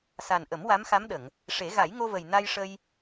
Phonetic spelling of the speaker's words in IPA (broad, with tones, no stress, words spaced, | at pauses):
sa˨˩nʔə˨˩˦m wa˧˥mxa˧˥mɗə˨˩˨ŋ | ʂe˨˩˦ɣa˨˩˦jŋo˧və˨˩j na˧jʂə˧j